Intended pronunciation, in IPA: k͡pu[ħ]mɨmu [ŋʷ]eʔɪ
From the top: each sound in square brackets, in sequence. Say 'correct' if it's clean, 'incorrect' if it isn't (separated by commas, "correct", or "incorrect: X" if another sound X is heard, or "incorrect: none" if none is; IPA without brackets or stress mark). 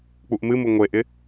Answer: incorrect: ʔ, correct